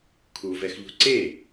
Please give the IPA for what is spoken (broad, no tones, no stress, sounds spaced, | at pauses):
kʰ u v ɛ x ʎ ṳ ǀ e